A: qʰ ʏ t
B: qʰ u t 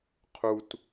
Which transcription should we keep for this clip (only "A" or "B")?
B